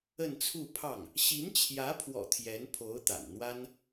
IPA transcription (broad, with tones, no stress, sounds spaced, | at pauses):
ə˥˧ n t͡sʰ u˥˧ pʰ ɑ˥˩ ŋ | ɕ i˧˥ n t͡ɕʰ j ä˧˥ pʰ w ɔ̰˨˩ t̪ʰ j ɛ˧˥ n pʰ o˧˥ ʊ̯ t̪ a̰˨˩ n n̪ w a˥ n